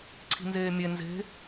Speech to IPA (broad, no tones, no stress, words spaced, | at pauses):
ǀʰi̤nzeːmʲe nze̤